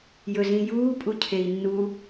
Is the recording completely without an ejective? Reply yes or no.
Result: no